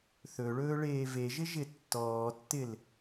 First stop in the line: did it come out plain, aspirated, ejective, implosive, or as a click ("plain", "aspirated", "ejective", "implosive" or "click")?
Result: plain